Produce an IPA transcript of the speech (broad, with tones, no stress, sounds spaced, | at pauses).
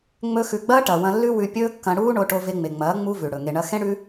ŋ͡m ɵ˧ x ʉ˨ ɡ͡b ɐː˦ ʈ ɐ˨ w ɐ̃˧ lː ʉ˦ w ʉ˧ pʲ ɵː˦ kː ɐ̃˧ ɽ uː˦ ɳ o˧ ʈ o˧ v e˧ ŋ͡m e˨ ŋ͡m ɐː˨˦ ŋ͡m u˦ v ʉ˨ ɽ ɵ˨ ŋ e˧ ɳ ɐ˦ x ẽ˦ ɽ ʉ˦